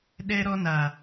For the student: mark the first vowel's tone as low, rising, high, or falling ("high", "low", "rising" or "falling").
high